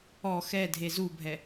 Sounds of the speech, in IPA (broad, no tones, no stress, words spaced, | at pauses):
ɔ xɛdʱe zubʱɛ